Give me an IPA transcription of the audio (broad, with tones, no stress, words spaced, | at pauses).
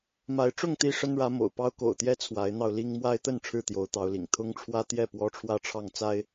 ma˨˦ɪ̯ʈ͡ʂʊ˥˨ŋ t̪i˥˨ʂə˦nɻä˨˦ mo̰˨˩ʊ̯pɑ˦ʊ̯ko̰˨˩ʊ̯t̪jɛ˦ t͡sʰwa˨˦ɪ̯n̪ɑ˧ʊ̯li˦ŋ mwa˦ɪ̯t̪ə˥˨n ʈ͡ʂʰɻ̩˥˨t̪jo˨˦ʊ̯t̪ɑ˨˦ʊ̯lḭ˨˩ŋ t̪ʰʊ˦ŋʈ͡ʂʰwä˦t̪jɛ˥˨ pwɔ˦ʈ͡ʂʰwä˥˨ʈ͡ʂʰɑ˥˨ŋ t͡sa˦ɪ̯